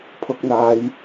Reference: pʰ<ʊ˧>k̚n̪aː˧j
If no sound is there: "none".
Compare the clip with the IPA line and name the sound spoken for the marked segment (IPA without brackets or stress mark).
ʊ˧